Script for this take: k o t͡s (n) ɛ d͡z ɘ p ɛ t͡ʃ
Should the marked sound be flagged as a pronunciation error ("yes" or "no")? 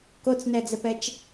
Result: no